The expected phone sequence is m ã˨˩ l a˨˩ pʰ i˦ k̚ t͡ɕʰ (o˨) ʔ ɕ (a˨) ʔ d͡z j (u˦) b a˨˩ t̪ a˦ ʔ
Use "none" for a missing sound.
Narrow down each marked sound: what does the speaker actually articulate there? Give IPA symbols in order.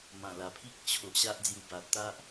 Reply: o˨, a˦, u˨˩

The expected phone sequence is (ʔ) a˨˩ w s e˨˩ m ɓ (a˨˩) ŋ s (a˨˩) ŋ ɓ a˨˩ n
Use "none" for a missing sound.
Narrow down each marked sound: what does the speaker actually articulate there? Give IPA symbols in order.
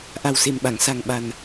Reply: ʔ, a˨˩˨, a˨˩

